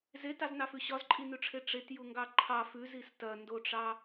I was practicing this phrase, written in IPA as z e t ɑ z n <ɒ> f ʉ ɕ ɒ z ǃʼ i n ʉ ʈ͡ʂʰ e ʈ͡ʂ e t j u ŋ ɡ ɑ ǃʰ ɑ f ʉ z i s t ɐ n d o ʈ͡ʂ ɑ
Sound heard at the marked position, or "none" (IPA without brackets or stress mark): ɑ